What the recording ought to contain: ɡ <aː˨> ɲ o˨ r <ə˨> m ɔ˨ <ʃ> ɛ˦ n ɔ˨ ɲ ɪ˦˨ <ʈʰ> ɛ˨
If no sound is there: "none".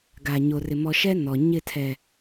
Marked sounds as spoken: a˨, ɪ˨, ʃ, tʰ

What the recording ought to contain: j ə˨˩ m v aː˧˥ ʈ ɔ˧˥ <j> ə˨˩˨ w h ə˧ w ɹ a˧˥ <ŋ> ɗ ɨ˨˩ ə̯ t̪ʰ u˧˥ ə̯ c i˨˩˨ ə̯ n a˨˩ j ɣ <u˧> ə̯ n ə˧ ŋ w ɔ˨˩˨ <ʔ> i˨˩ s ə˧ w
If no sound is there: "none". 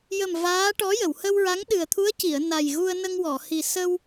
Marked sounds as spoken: j, ŋ, u˧, h

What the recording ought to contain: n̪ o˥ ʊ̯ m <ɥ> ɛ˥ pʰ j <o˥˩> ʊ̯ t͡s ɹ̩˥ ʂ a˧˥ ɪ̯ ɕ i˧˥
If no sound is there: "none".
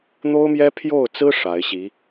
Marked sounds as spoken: j, o˥˩

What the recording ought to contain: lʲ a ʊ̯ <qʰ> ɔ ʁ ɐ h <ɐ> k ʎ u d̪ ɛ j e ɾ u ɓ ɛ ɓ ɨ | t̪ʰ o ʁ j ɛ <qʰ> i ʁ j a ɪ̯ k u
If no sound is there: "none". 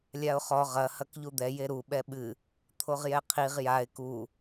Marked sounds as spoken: χ, ɐ, qʰ

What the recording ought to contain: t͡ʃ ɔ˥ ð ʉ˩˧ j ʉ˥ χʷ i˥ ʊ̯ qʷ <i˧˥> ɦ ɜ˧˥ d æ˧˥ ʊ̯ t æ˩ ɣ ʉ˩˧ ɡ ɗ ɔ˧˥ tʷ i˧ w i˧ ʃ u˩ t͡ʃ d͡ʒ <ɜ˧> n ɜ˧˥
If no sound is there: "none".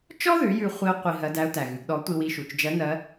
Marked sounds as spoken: i˧, ɜ˧˥

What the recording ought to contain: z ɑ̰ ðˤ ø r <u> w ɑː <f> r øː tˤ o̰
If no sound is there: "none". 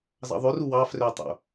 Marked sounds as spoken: u, f

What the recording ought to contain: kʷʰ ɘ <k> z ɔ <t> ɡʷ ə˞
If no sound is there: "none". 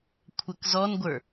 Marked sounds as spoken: k, n

